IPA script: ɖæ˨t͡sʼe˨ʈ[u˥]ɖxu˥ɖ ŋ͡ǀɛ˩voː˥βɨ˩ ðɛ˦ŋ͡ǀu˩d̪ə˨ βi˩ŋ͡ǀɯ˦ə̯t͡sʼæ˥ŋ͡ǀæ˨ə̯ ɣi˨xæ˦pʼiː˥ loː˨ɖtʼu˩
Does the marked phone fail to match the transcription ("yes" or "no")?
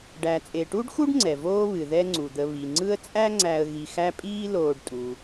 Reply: no